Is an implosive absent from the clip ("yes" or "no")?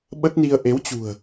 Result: no